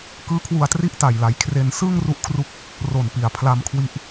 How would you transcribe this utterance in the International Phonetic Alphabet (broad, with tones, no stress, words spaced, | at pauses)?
kɯː˦˥kʰwu˧a̯tri˥˩ʔ ta˨˩jla˩˦jkʰre˧n sɯː˥˩ŋ ru˥˩ʔkʰru˥˩k̚ | ro˨˩npi˨˩a̯ pʰla˧mkʰwi˦˥ʔ